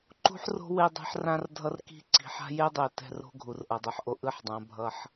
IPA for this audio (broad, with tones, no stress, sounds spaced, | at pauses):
ǃ ṳ˦ ħ r o̤˦ w e˦ dˤ ɛ̤˦ ħ r ã˦ r dʱ ʌ˦ r k i̤˦ ǀ i̤˨ ħ a̤˦ j e˦ dˤ e˨ t ɛ̤˦˨ r o̤˦ ɡʱ u˨ r ʔ ʌ˨ dˤ ɯ˨ ħ ʔ o˦ ʔ ɯ˦ ħ dˤ ã˨˦ bʱ ʌ˦ ħ